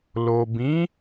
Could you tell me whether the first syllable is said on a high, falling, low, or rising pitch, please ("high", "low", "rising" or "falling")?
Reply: low